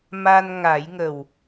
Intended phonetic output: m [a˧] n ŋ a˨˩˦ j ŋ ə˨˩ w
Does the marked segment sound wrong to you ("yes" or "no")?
no